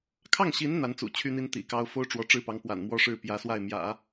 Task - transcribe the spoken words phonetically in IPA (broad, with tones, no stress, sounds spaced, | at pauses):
kʰ ɑ˥˩ ŋ ɕ i˧˥ n n̪ a˧˥ n t͡s ṵ˨˩ t͡ɕʰ y˥ n̪ i˥ n t̪ ḭ˨˩ k ɑ˥ ʊ̯ f o˥ ʊ̯ ʈ͡ʂ w ɔ˧˥ ʈ͡ʂ ɻ̩˥˩ p ɑ˧˥ ŋ p w a̰˨˩ n m w ɔ˥ ʂ ɻ̩˥˩ p j ä˧˥ s w a˥˩ ɪ̯ m j ä̰˨˩˦